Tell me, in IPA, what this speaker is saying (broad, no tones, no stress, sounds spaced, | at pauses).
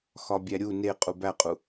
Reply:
x ɒ bʲ æ ɾʲ u n e qʼ u b æ qʼ u